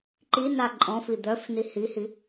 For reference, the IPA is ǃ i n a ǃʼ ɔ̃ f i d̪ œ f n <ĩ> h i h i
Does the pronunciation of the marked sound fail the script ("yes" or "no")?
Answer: yes